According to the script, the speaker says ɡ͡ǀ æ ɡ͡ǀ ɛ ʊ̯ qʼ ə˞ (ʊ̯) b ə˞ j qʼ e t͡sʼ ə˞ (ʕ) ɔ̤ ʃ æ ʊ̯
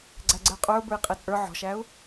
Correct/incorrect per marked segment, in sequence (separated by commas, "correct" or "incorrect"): correct, correct